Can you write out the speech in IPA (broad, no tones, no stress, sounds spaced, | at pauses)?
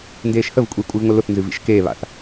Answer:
n d eː ʃ h ə v kʷʼ i kʷʼ ɨ v ŋʷ ə l ʊ θ n z ɨ v ḭ ʃ k eː β a̰ θ